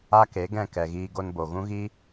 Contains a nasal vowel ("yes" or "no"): yes